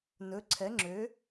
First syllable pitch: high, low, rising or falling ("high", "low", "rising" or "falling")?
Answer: rising